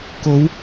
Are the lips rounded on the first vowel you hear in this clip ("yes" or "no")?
yes